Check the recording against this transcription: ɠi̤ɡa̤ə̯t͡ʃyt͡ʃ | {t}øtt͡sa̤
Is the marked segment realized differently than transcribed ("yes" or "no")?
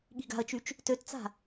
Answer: no